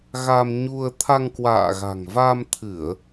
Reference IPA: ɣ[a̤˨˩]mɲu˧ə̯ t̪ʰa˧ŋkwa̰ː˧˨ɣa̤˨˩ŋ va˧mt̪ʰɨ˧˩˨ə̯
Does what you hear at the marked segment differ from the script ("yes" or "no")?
yes